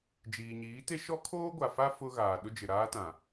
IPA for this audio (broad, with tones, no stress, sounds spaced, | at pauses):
d͡ʒ iː˨ ɲ iː˨˦ t e˦ ʃ ɔ˦ kʰ oː˦ ɡʷ a˨ f a˦ f ʊ˦ ɣ aː˨ ɗ ʊ˦ d͡ʒ ɪ˨ ɾ aː˦ t ã˨